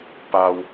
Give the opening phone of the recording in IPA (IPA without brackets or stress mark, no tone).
p